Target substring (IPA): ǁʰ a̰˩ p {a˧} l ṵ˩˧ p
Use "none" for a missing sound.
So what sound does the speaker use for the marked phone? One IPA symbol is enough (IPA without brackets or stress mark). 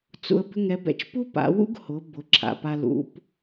a˧